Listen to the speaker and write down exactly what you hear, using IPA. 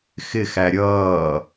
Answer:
x ɪ x æ ɾʲ ʌː

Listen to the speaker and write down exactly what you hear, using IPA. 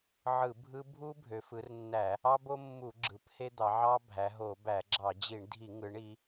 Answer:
ʕ ɯ˧˩˧ bʱ ɯ˦ bʱ u˦ bʱ ø˩˧ f ɯ˩˧ r nː æ˧˩˧ | ɑ˦ b o˦ mː u˧˩˧ ɡ͡ǁ ɯ˩˧ p h e˦ d̪ ɑ˩˧ ʕ ɑ˦ bʱ æ˩˧ ɦ o˧˩˧ b æ˧˩˧ ɡ͡ǁ ɑ˧˩˧ d͡ʑ i˧˩˧ ɳ dʱ i˧˩˧ ŋ ɯ˩˧ ɳ i˩˧

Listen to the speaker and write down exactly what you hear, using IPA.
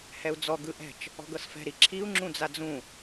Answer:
h ɛ u̯ d͡z ɔ ɡ ɯ ʔ ɛ̤ t͡ʃ | ɔ̤ ɡ ɤ s f ɛ̤ ɾ i ǁʰ i u̯ ŋ͡ǁ ũ d͡z a d͡z ũ

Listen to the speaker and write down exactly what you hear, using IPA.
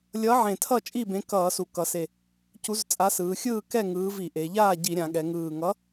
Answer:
lʲ ʌ˨˥ ʕ ẽ˨˩ tʰ ʌ˥˨ t͡ʃʼ i˥˨ b ẽ˨˥ k ʌː˧˩˧ s u˨˩ k ʌ˩˧ s e˨˩ | c u˨˥ z t͡sʼ a˨˥ s ɯː˩˧ xʲ ɯː˥˨ k ɛ˥˨ ŋ ɯː˨˥ v i˧˩˧ ʔ e˩˧ ʎ aː˥˨ ɟ i˧˩˧ ɾʲ ã˩˧ ɠ ɛ˩˧ ŋ ɯː˨˩ ŋ ʌ˨˥

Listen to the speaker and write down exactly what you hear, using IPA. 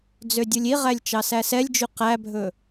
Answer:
d͡z ø dʲ u lʲ i ʁ æ lʲ t͡ʃ ɑ s æ s ɛ lʲ d͡ʒ y q æ bʱ ɵ

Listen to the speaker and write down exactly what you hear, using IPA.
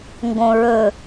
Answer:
ŋ ɡ õ ɹ ɵ

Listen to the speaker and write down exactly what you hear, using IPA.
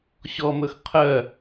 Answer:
ɕ ɔ m ɵ x qʰ œ

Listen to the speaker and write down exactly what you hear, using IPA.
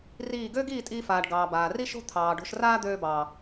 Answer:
r iː˦˨ ɡ øː˦ ɡ iː˦˨ tʼ iː˧ f aː˨ ɖ ɡ ɑː˨ b aː˨ r i˦ ʃ o̤˦ t̪ʰ ɑː˨ ɖ o̤˧ ʃ r aː˦ d̪ øː˧ b ɑː˨

